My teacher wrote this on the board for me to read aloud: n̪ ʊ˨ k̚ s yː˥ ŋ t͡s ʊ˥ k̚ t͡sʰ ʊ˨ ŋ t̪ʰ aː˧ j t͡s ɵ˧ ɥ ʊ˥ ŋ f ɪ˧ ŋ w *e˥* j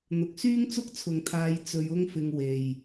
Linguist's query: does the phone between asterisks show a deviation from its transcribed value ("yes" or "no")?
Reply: yes